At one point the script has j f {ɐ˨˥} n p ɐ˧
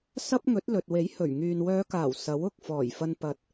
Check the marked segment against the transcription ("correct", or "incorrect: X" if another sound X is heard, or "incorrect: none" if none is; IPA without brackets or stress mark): incorrect: ɐ˧